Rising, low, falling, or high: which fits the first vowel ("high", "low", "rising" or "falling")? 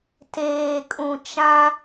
low